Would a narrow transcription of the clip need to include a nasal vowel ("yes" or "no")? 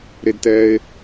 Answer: no